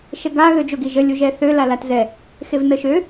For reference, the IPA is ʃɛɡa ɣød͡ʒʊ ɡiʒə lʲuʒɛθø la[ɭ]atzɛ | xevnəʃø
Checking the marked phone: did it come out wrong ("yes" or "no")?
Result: yes